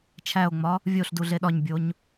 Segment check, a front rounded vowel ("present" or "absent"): absent